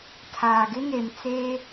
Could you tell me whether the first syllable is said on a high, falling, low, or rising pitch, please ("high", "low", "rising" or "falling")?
low